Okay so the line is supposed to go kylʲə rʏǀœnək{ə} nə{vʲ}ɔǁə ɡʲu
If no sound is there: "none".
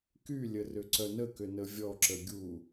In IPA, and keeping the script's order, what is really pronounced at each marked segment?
ʏ, vʲ

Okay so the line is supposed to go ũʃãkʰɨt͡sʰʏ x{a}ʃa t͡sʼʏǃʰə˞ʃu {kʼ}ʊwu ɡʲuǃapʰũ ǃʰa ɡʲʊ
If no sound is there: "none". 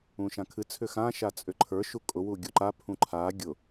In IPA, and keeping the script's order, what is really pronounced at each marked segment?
ã, kʼ

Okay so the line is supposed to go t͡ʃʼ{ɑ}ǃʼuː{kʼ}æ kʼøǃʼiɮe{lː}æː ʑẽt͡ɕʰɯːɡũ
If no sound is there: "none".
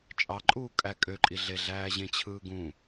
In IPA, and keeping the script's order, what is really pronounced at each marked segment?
ɑ, kʼ, ɮ

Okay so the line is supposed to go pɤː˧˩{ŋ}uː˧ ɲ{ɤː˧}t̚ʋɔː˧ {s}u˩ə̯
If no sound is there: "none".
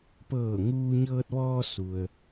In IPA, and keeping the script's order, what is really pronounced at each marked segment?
ŋ, ɤː˧, s

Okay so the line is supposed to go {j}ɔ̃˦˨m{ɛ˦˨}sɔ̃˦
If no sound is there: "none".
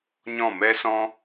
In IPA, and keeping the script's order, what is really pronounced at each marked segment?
ɲ, ɛ˦

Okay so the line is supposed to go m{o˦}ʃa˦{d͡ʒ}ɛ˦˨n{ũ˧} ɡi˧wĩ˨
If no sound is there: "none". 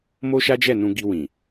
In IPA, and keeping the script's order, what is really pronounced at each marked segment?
o˦, d͡ʒ, ũ˧

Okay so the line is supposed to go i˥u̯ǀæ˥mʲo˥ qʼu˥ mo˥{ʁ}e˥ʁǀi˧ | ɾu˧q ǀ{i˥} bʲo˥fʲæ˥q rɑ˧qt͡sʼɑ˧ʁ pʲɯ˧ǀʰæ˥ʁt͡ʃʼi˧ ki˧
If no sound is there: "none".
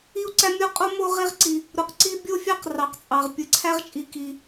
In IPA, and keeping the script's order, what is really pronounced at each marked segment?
ʁ, i˥

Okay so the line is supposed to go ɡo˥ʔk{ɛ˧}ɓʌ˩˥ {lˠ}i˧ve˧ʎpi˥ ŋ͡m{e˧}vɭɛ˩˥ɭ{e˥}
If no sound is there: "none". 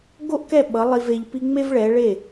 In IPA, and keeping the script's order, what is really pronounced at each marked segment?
ɛ˥˩, lˠ, e˥, e˥˩

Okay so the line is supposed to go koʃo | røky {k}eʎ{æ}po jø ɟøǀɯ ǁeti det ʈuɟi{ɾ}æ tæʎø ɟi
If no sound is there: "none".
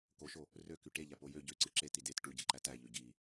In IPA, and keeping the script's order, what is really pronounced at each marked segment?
ʈ, æ, ǃ

